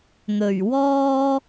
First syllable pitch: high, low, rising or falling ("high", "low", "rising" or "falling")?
low